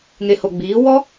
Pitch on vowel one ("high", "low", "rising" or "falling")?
low